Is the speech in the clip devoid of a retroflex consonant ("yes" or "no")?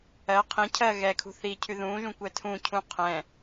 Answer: yes